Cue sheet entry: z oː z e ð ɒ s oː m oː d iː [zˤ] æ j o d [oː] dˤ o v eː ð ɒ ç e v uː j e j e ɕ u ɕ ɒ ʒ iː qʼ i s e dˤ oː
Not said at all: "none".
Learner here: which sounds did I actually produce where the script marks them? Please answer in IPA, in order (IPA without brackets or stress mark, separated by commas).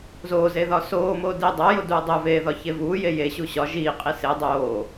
dˤ, uː